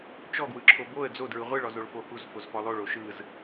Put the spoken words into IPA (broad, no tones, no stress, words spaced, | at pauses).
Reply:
t͡ʃɔɡwɯ ǁʰoboə̯ d͡zodɹɯ ʁʷɯɭ ɔzoɭfohuz fozfɔlˠoɭo ʃɯz